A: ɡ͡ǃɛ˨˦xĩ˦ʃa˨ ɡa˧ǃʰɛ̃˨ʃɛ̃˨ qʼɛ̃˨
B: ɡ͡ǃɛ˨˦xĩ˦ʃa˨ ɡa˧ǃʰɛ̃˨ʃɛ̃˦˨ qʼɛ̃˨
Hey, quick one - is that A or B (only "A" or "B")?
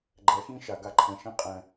B